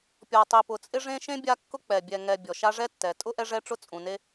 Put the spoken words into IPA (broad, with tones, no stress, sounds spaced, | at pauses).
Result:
pʲ ɔ˨ tˤ i˨ p ʊ˨ t͡sʼ ɪ˥ ʐ ẽ˥ ʃ ẽ˥ bʲ a˦ kː ʊ˥ k͡p ɛ˩ bʲ ɛ˨ ŋ ɛ˨ bʲ ɔ˩ ʃ a˦ ʐ ɛ˥ tː ɛ˩ tʼ ʊ˥ ʔ ɛ˦ ʐ ɛ˦ ʈ͡ʂ ʊ˦ t͡sʼ ũ˩ n e˦